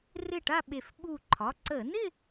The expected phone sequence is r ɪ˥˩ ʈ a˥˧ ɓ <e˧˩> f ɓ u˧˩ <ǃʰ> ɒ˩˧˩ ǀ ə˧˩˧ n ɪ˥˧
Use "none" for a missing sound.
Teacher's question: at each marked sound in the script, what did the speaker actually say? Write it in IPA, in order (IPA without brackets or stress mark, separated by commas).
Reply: e˧˩, ǃʰ